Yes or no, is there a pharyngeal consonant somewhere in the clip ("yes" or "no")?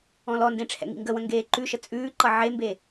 yes